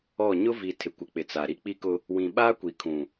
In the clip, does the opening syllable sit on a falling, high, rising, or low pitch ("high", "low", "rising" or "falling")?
falling